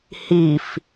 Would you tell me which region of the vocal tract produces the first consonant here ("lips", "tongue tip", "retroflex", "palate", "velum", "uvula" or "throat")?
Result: throat